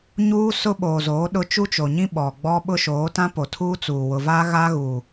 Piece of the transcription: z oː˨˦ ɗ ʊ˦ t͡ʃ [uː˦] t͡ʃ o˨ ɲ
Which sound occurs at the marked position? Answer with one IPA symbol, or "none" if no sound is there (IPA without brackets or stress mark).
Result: u˦